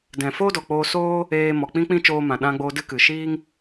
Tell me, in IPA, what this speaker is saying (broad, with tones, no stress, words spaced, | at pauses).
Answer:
dɛ̃˨foː˦dɔ˨ k͡poː˧soː˦ | eː˧mɔ˨ k͡pĩ˦k͡pĩ˦t͡ʃoː˧ mã˨ɗã˧ɡ͡boː˧ dɨ˦kɨ˨ ʃiː˦ŋ